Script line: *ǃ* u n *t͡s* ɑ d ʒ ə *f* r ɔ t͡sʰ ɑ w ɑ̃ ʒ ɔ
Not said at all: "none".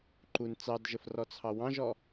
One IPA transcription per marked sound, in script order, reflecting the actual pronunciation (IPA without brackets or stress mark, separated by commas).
ǃ, t͡s, f